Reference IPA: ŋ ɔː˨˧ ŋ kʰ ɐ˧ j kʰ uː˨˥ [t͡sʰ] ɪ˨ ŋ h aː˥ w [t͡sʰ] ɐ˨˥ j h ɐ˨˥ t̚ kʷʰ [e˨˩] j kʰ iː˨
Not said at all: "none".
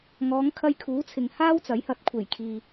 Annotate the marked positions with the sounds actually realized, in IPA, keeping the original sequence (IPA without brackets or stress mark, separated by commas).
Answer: t͡sʰ, t͡s, e˨˩